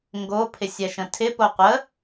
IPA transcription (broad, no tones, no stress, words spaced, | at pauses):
ŋɡo pʰɪsʲɛʃə̃tʰɪ poqʷə